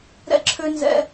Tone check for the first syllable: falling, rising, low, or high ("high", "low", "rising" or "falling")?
high